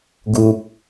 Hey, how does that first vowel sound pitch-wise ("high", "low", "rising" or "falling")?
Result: low